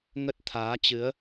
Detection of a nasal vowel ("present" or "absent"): absent